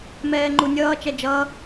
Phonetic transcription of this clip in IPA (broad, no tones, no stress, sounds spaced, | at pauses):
m ɛː ŋ͡ǃ u nʲ ʌː t͡ʃ ɛ d͡ʒ ʌː